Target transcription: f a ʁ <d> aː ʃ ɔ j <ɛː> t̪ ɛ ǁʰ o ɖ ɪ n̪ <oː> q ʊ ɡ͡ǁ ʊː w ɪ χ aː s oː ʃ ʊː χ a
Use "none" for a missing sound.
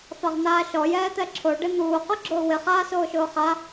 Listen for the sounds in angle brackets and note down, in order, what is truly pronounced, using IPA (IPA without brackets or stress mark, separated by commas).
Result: n̪, ɛː, uː